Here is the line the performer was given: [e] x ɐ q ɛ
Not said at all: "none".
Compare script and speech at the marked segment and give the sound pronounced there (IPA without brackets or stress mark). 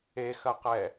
e